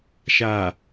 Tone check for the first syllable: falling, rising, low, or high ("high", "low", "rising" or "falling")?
low